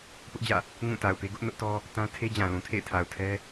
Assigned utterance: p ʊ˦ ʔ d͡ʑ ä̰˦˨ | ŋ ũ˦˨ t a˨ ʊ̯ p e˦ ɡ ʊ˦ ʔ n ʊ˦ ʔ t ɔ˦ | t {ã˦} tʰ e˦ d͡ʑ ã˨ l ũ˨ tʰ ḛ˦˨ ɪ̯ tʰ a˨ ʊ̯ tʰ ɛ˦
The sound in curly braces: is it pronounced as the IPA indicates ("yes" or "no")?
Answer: yes